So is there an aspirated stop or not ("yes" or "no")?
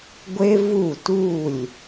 no